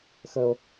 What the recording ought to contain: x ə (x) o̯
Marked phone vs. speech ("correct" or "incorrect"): incorrect